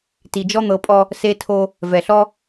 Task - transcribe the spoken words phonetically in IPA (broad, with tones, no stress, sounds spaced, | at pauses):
t i˨ d͡ʒ ɔ˦ n̪ ɤ˨˦ pʼ ɔ˦ | s e˦ tʰ o˦ | v ɛ˨ ɬ ɔ˦